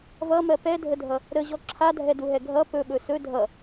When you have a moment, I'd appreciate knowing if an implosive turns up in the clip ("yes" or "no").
yes